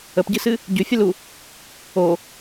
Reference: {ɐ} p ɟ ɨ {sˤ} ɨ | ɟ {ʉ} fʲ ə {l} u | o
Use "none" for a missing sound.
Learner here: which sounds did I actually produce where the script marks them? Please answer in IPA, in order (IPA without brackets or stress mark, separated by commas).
ə, s, ʉ, l